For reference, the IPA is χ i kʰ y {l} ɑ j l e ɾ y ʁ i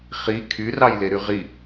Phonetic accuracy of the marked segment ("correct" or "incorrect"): incorrect